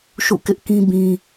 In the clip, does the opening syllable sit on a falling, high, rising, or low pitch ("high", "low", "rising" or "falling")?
falling